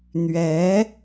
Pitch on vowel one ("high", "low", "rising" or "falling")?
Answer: rising